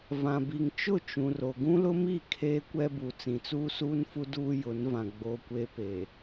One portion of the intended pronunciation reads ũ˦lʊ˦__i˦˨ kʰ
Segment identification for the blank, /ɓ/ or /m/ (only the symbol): m